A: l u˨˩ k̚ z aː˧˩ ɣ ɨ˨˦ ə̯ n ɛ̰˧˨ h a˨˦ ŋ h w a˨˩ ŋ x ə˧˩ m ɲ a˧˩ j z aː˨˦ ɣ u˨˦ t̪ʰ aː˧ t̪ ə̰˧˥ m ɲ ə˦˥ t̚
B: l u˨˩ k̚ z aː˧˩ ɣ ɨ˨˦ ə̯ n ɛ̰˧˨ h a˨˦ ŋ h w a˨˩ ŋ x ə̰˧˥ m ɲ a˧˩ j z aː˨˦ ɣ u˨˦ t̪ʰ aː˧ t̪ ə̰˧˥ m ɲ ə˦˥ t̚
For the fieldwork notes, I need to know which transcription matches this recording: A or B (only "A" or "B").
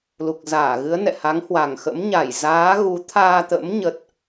B